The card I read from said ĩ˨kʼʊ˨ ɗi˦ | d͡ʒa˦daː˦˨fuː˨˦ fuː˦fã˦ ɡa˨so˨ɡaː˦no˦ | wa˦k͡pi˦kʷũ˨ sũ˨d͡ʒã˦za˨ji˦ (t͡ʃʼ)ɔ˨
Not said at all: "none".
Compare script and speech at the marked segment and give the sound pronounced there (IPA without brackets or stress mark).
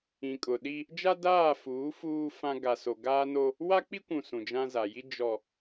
d͡ʒ